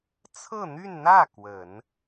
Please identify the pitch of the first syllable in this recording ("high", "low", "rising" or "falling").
falling